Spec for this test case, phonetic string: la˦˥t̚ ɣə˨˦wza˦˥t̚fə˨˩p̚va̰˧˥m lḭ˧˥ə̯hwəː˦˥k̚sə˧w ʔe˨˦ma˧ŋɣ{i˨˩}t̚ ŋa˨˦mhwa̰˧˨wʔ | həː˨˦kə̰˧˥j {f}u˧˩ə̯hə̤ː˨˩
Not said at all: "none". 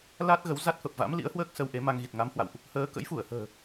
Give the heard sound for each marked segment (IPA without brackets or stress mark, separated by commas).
i˨˩, f